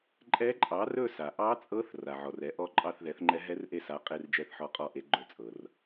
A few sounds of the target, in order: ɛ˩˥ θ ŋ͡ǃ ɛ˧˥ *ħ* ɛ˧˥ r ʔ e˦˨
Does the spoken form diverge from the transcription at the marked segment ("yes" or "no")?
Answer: yes